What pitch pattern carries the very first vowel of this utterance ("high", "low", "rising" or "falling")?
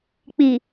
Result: low